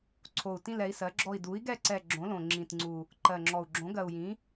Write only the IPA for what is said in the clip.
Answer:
ǀʰo˨˩u̯ tĩ˦˨lɛ˩˥i̯sɜ˩˥ɡ͡ǁɔ˦˨i̯ du˩˥i̯ɡɛ˦˨ǀɛ˨˩ ɡ͡ǁõ˩˥lõ˨˩ ŋ͡ǁĩ˨˩tŋ͡ǀu˨˩ | ǃɜ˨˩ŋ͡ǁɔ˨˩u̯ ɡ͡ǁõ˩˥ɡɜ˨˩u̯jĩ˩˥

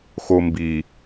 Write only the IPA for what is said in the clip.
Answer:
xombi

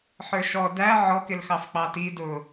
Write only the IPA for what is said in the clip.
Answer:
ħə˞ʃɔ dæ ʕɔkɪl xɑfk͡pɑti dʊ

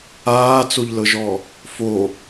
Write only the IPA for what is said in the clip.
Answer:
aːt͡soʎlɤʒɔ | fo

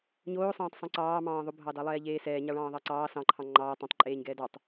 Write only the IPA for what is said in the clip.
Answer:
ɲoːsˤɑ̃ːtˤ sˤõǀɑːmɑ̃ː ðˤobʱɑdɑ lˠɛːʎeːsɛː ɲɑɭɑ̃ːðˤɑǀɑː sɑ̃ǃʰɑ̃ ŋ͡ǃɑː tˤɑ̃tˤ ǃʼeːɲɡɛːdɑtˤ

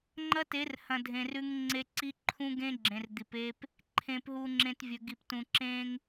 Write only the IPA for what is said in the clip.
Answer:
ŋ͡ǃɐ˦te˨˦rhɐ̃˨ dʱẽ˨rʉ˦ŋŋ͡ǀe˦ ǀi˦ǃʰũ˦ ɡẽ˦ɡ͡ǁẽ˨r d̪i˨p e˦p | ǃʰẽ˨pɦu˨ŋ͡ǁẽ˨t vʲɵ˨ɡi˨p tũ˨ǁẽ˦ŋ

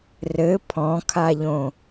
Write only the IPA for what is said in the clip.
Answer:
rɘ pʰɔ̃kʰaʎõ

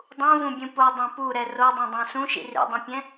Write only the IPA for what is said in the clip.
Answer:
dˤũvũbʲũ podˤɛ̃ puɾɛ rodˤẽdˤɛ̃ sũʃḭ rḭdˤũpʲɛ̃

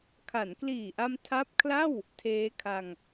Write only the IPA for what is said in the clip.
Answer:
kʰa˩˦nkliː˨˩ʔa˧m tʰa˦˥p̚kʰla˥˩w | tʰeː˦˥kʰa˧ŋ

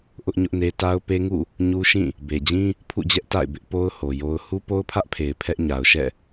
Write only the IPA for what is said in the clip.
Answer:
ʔʊ˦ʔɲʊ˦ʔne˦ ta˦ʊ̯pe˦ŋṵ˦˨ | ɲu˦ʃĩ˦˨ | be˨d͡ʑĩ˦ | pʰṵ˦˨d͡ʑɛ˦ʔ ta̰˦˨ɪ̯bɪ˦ʔpo˦ʊ̯ ho˨jo˦ʊ̯ hu˦po˦ʊ̯pʰä˦ʔpʰe˨ɪ̯ pʰɛ˦ʔɲa˨ʊ̯ʃɛ̰˦˨

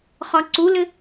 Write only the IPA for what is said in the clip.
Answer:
χɒǀulɘ

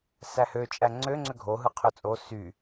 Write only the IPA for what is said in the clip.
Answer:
sæhøt͡ʃʼæ ŋ͡ǀøŋ͡ǀø ɡʱoɦɯ qʰøt͡sʼo sy

